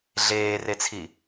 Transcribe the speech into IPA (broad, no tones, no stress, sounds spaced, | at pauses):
ɮ eː r e t͡sʰ i